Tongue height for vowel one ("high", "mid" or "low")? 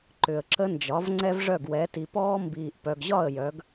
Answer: high